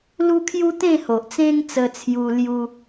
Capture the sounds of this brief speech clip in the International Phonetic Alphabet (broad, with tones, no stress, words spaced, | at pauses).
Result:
lu˦kʰju˦t̪ẽ˥˧ho˨ʔ t͡sẽ˦ŋt͡sə˧t͡sʰju˧ lju˦